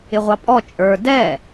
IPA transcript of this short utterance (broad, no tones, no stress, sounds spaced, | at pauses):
ɪ ʁʷ ɑ pʼ ɔ t͡ʃʼ ə˞ d ɛ